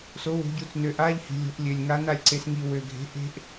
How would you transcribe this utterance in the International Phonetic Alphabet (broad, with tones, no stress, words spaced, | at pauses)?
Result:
so˩˧wo̤˩˧ɟu˩˧t͡s nø˩ʔa˧ʎhi̤˩ lʲo̤˩˧ʔlʲø˩lʲ ŋa˩˧na˩lʲǀe˩sŋi˩ wø˩ɡʱe̤˩˧ ʔe̤˧ʔ